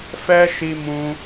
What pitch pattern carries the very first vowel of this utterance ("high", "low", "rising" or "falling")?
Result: high